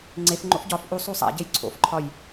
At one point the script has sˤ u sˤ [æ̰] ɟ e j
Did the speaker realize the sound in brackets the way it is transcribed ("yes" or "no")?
yes